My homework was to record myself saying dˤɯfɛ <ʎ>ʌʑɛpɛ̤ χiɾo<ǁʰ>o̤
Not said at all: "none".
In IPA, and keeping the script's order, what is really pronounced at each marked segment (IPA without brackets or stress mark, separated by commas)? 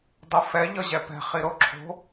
ʎ, ǁʰ